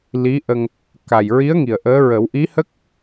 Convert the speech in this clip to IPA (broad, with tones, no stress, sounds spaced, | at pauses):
l i˧˥ ʔ ə˧ ŋ | k a˨˩ j ɹ i˧˥ ə̯ ŋ i˨˩ ə̯ ʔ əː˧˥ ɹ ə˨˩˦ w ʔ i˧˥ h ə˦˥ k̚